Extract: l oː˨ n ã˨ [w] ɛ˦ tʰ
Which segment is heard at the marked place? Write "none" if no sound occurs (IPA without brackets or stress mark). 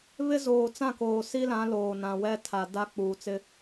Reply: w